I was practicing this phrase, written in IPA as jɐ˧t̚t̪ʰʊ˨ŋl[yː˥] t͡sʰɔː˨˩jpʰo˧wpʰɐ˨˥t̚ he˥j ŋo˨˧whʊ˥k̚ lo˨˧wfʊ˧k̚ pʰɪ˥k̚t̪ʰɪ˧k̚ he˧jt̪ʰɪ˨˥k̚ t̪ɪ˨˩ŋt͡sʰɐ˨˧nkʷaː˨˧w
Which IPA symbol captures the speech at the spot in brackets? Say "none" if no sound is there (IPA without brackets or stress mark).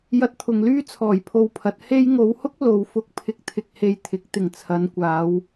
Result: yː˥